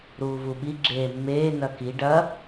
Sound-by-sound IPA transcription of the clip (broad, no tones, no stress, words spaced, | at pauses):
ɾuːvuɓi ɡ͡ǁeːmːeː nɐki ɖɐ